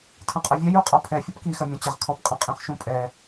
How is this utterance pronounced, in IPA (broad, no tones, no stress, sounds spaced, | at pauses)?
tʰ ɐ̃ qʼ ɐ vʲ ɛ j u qʼ ɒ pʰ ɛ fʲ ɔ p k i x ɐ mʲ ɔ̃ t͡ɕ ə ʁ kʰ ɔ p qʼ ɐ̃ qʼ ĩ χ ʃ ũ pʼ ɛ